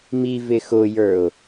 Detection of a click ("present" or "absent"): absent